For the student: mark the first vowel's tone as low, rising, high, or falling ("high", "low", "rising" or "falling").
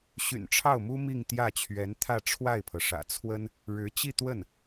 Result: low